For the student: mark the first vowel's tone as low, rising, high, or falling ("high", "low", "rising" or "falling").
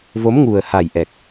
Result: rising